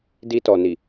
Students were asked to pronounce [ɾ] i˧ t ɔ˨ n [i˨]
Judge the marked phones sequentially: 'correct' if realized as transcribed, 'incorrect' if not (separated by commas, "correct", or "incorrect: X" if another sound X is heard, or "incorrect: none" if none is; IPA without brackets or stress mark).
incorrect: d, correct